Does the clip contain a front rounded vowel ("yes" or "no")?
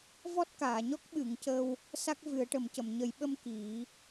no